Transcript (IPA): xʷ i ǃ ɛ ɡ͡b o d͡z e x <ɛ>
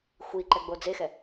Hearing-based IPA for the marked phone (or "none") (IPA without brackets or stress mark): ɛ